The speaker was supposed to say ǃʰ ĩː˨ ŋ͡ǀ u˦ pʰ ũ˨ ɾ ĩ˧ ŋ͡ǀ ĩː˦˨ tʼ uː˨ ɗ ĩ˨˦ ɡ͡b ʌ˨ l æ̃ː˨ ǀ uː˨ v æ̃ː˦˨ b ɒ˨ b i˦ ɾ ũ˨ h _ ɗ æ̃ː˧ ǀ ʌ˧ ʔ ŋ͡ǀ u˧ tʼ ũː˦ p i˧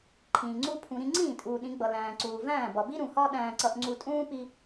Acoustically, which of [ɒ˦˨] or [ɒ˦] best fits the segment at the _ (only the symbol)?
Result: ɒ˦